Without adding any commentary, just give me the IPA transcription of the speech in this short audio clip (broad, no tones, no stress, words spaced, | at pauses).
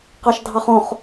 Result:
qɑʃdʱɑχõχ